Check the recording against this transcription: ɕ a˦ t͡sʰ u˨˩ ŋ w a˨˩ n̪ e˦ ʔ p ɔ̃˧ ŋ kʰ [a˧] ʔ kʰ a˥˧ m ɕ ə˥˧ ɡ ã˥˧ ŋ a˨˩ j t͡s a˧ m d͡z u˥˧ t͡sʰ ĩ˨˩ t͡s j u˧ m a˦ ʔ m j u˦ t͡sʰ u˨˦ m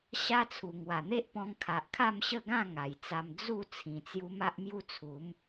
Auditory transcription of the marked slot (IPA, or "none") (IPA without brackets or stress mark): a˨